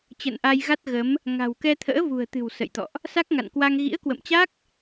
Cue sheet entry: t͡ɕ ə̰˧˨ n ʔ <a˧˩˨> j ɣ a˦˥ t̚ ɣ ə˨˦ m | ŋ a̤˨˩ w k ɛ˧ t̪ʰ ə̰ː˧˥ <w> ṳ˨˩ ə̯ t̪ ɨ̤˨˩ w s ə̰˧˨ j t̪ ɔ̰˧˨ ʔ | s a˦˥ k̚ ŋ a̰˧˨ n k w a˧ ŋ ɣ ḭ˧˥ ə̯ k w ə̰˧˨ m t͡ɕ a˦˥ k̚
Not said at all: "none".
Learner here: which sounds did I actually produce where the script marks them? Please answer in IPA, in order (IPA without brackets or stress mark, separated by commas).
a˧, v